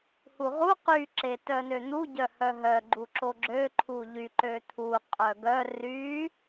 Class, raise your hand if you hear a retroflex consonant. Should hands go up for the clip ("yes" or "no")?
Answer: no